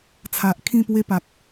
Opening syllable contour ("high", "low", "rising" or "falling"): low